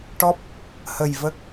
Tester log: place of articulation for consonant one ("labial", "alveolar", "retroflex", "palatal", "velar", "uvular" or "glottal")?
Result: retroflex